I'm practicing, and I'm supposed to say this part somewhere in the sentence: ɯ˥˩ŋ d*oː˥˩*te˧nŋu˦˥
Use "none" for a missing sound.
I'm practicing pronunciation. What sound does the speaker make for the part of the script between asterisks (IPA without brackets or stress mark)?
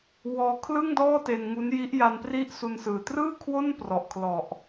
ɔː˥˩